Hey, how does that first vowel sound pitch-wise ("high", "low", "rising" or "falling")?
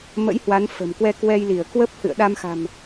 rising